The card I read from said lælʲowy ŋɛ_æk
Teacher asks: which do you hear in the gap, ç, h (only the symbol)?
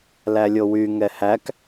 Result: h